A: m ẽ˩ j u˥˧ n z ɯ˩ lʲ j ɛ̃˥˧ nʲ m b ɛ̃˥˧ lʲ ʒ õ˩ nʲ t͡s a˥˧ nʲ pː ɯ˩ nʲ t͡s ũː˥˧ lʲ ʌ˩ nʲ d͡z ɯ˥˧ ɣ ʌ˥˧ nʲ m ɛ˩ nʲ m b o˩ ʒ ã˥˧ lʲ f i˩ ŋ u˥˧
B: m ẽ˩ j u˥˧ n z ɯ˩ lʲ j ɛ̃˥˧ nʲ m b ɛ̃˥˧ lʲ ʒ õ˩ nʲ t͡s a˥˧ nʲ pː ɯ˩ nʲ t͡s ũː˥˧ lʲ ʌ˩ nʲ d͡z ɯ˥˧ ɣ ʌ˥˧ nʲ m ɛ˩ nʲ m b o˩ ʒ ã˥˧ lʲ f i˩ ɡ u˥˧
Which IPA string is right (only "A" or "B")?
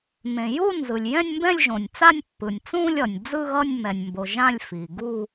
B